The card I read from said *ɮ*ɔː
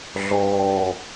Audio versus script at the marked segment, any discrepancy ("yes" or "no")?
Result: no